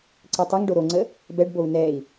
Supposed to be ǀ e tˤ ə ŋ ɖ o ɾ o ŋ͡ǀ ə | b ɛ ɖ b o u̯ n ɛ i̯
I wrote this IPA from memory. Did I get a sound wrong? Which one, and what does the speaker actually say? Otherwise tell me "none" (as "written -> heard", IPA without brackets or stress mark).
none